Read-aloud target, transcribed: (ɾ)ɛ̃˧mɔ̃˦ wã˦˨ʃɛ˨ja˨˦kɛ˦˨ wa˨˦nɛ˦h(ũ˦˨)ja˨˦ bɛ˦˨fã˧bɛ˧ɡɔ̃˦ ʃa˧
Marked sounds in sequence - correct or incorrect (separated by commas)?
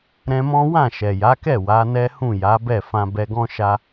correct, correct